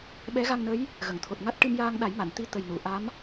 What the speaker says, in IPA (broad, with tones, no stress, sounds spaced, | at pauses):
ɓ ɛ˧˥ ɣ a˧ ŋ n ə˧˥ j | ɣ ə˨˩˨ ŋ t̪ʰ o˨˩ t̚ ŋ a˦˥ t̚ ʈ ɨ˧ m j aː˧ ŋ ɗ a˨˩˦ j m a˨˩˨ n t̪ i˧˥ t̪ ə˨˩ j n u˨˩˨ ʔ a˧˥ m